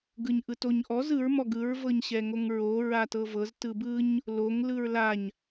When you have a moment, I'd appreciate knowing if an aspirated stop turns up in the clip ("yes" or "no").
no